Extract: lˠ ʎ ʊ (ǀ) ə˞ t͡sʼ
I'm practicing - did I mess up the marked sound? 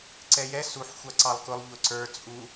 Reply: no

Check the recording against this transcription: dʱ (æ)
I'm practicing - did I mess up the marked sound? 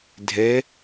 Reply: yes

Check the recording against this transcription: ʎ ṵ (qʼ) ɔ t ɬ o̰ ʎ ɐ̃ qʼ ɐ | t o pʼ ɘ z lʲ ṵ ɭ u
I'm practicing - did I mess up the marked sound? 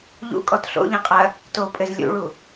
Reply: yes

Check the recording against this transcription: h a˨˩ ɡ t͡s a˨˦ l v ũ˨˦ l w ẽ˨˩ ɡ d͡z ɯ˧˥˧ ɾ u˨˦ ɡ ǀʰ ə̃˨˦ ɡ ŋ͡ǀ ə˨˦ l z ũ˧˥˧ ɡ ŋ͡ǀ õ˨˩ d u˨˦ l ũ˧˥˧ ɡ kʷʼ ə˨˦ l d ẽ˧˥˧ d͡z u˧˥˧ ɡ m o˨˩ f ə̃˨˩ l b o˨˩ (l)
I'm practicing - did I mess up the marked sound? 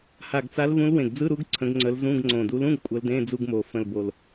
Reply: no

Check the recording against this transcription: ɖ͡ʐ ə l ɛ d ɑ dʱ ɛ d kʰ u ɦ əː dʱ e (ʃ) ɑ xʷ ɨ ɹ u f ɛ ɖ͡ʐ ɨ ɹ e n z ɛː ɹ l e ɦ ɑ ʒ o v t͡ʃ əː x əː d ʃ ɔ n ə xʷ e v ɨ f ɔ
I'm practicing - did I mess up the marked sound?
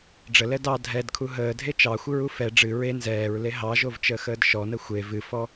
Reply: yes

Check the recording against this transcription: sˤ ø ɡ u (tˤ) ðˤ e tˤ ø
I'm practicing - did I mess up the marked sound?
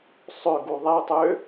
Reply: yes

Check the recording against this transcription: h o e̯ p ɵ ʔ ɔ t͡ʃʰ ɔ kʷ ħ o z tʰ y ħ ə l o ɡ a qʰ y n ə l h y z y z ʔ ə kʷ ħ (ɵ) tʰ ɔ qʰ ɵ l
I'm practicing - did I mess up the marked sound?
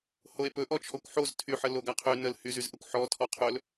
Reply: yes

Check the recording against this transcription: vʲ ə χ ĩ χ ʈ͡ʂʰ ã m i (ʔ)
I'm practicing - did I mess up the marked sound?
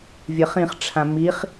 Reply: yes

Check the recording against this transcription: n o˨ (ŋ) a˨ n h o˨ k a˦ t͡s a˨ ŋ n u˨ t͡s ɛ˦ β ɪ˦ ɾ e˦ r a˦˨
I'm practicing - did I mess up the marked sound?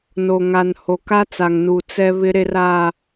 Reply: no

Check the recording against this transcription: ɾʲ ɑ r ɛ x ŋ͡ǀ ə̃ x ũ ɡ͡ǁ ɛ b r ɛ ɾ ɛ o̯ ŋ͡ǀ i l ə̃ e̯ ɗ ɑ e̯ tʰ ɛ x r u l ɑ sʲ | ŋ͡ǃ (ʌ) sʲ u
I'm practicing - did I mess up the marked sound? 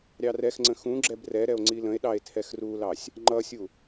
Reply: no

